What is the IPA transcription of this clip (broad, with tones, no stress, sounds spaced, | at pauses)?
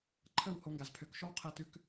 ǃʰ ə˥˩ w h o˧ ŋ ɡ a˩ z pʰ ø˩˥ k ʃ ɔ˥ w qʰ ɛ˧ t ʉ˧ k